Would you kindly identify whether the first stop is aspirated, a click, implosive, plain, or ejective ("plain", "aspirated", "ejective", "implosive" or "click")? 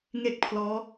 plain